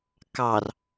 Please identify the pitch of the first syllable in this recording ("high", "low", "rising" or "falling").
low